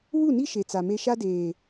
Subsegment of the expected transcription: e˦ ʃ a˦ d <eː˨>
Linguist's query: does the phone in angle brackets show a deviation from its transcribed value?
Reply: no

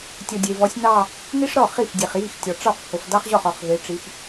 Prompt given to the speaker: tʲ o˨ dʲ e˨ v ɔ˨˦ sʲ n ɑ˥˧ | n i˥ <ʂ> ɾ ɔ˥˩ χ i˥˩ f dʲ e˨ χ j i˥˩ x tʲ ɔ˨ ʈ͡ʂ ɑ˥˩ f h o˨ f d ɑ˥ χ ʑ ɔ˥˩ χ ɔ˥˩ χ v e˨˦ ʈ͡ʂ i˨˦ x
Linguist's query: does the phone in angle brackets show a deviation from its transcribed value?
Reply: no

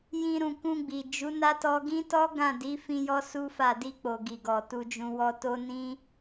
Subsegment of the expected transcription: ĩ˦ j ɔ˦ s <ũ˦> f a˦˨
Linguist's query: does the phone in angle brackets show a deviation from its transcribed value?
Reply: yes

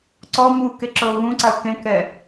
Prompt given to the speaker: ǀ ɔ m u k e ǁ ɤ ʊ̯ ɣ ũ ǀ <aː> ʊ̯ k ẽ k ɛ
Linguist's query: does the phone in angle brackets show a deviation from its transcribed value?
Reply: yes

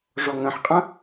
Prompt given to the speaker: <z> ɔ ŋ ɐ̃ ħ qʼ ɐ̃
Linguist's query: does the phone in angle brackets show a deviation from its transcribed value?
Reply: yes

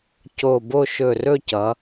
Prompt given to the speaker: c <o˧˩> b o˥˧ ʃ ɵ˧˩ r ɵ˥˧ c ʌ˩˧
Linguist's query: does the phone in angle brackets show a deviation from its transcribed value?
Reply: no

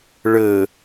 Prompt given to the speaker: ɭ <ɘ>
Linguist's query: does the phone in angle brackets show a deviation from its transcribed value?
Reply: no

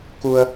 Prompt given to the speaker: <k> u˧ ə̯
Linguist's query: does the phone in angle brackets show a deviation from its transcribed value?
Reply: no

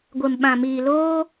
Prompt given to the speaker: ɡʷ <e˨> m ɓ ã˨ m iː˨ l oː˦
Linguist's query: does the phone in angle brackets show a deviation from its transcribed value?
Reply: no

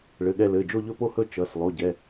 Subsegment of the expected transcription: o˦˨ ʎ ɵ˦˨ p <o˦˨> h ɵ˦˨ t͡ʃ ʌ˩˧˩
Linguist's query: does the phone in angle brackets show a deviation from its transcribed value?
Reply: no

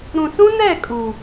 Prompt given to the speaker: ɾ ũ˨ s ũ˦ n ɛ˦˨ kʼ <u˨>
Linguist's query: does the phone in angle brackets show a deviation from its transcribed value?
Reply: no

